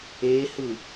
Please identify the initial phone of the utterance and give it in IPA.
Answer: e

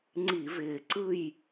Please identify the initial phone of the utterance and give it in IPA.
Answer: ŋ͡ǀ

